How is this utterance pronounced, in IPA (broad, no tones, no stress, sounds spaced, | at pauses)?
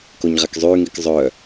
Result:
k o ɲ ʁ a k zˤ yː ŋ i k zˤ œ